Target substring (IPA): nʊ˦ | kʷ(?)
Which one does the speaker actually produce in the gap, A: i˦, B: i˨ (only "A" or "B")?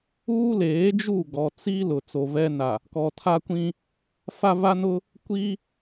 A